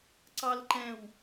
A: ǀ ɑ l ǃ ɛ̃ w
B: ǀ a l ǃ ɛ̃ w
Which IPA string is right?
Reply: A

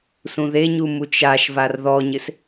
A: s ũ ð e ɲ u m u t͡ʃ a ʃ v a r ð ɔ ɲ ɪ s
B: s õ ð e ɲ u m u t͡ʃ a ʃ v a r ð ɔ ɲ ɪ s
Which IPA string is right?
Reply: A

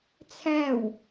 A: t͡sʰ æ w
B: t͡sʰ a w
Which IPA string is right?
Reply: A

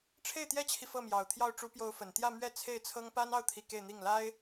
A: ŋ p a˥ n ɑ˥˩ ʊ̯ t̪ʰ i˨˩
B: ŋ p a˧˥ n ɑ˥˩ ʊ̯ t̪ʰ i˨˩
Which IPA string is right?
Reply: A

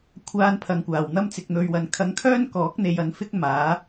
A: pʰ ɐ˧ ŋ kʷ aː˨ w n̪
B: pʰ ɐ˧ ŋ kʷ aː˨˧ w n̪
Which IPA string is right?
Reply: A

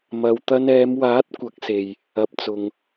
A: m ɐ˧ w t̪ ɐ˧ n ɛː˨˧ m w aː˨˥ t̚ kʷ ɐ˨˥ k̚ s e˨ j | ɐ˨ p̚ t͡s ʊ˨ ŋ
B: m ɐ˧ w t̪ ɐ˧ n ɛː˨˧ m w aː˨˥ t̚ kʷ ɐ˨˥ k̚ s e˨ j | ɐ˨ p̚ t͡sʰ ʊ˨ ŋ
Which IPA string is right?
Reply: A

